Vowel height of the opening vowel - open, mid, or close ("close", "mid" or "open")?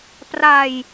open